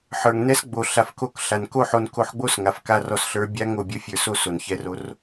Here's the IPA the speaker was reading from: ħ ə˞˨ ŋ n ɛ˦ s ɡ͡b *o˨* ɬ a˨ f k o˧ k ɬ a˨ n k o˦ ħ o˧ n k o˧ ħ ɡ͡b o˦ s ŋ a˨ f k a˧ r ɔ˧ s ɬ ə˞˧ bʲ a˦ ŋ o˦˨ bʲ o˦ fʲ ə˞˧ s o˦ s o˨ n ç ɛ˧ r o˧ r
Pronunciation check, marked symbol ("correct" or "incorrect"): correct